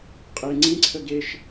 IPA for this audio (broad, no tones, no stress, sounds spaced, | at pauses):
qʼ e ŋ͡ǀ ĩ ǀʰ ə ɡ e ʃ